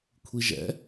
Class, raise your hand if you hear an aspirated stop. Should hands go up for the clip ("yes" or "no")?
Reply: yes